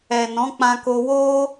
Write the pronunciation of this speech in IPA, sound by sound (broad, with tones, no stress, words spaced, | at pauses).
ɛ˨nɔ̃˨˦k͡pã˧ko˧ wo˦